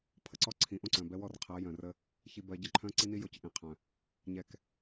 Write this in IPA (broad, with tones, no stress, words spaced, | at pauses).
pʰə˨ǀɔ˦ ǀʰĩ˨˦ʔõ˦ǀœ̃˨bɛ˦ wɔ˦˨rqʰɜ˨˦ jœ̃˨rə˦ | çi˨bɜ˨ ɟə˦ǃʰœ̃˦ ǀi˦ni˦ jo˦cʔĩ˨˦ qʰœ̃˨ | ɲɛ˨k